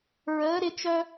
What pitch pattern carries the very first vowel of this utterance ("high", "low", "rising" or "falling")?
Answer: rising